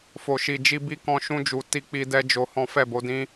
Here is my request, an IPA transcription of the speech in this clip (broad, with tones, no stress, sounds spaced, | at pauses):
f o˨ ʃ i˨ d͡ʒ i˧ b i˧ k ɔ̃˧ ʃ ũ˧ d͡ʒ u˨ t i˧ k͡p i˧ d ɛ˧ d͡ʒ o˧ h ɔ̃˦ f ɛ˦˨ b o˨˦ d ĩ˦